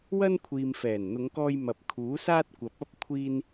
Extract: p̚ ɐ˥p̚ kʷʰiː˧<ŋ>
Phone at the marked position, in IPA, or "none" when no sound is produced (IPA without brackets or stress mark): n